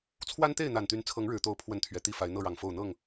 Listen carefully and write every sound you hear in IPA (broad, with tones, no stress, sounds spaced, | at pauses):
t͡sʰ w a˦ n t̪ e˥˨ ɪ̯ n̪ a˨˩ n t̪ y˨˦ n t͡sʰ ɤ˨˦ ŋ ɻ ɻ̩˨˩ t̪ o˨˦ ʊ̯ pʰ w ə˦ n t̪ʰ ɥ ɛ˨˦ t̪ i˥˨ f a˨˦ ɪ̯ n̪ ɤ˥˨ ɻ ɑ˨˩ ŋ f o˥˨ ʊ̯ n̪ ɤ˥˨ ŋ